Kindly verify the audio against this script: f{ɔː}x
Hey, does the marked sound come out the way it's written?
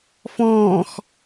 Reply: no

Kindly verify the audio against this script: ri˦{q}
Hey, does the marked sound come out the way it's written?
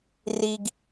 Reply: no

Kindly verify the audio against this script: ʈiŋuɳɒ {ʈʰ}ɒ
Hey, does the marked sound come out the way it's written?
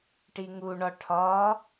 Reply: yes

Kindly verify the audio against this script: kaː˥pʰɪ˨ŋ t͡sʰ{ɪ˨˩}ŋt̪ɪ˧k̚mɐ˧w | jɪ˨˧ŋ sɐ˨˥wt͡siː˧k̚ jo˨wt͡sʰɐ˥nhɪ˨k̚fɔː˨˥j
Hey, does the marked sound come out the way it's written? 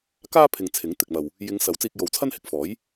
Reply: no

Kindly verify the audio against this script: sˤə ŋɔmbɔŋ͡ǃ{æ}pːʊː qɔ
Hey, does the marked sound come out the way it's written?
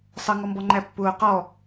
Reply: yes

